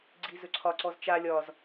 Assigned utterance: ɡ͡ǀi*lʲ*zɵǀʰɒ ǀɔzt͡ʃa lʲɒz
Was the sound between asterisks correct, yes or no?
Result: no